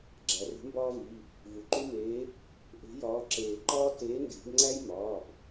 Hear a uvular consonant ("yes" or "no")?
no